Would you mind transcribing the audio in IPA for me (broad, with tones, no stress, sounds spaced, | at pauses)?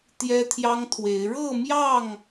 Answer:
t̪ j ɛ˦ t̪ʰ j ɑ˦ ŋ t̪ʰ w e˨˦ ɪ̯ ɻ ɤ˥˨ m j ɑ˥˨ ŋ